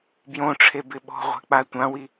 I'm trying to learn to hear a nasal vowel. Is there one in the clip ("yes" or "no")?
yes